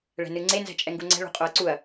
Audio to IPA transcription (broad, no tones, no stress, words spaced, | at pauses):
ɭɛ̤nɨŋ͡ǀe nzɛ̤t͡ʃʼɛŋɡuŋ͡ǀɛ̤ ɭṳqʼoɐ̯ǀuɐ̯